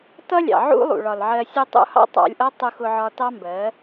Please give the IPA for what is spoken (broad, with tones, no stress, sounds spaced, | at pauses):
t ʌ˦ lʲ ɑ̰˨ ʕ ṵ˦ lˠ ṵ˨ ɭ ɒ˨ l ʕ ɜ˧ sʲ u˧ tˤ ṵ˧ h ɑ̰˦ tˤ ɑ̰˧ lʲ ʔ ʌ˦ tˤ u˧ x ʊ˧ ʕ ɒ˧ t ɑ˦ m b ɜ˨˦